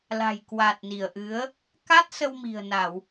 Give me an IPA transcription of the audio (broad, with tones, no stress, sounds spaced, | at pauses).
l a̤˨˩ j k w a˨˩ t̚ n i˧˩ ə̯ ʔ ɨ˨˦ ə̯ | k a˦˥ t̚ s ə˧ w m i̤˨˩ ə̯ n a˧˩˨ w